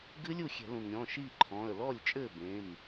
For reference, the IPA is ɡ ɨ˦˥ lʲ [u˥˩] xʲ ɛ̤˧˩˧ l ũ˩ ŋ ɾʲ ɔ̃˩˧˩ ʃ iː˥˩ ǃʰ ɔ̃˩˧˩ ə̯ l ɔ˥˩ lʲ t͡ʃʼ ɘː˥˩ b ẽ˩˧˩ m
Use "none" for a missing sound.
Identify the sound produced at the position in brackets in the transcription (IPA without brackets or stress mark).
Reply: u˥˩